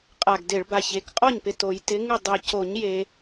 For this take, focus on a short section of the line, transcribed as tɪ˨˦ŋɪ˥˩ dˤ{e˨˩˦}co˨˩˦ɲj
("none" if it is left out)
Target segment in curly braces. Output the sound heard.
e˨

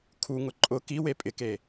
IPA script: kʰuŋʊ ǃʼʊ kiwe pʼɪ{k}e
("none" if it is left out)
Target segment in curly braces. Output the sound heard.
k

